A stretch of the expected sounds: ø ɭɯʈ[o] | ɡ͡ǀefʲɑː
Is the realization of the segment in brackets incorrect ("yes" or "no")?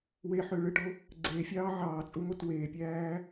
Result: no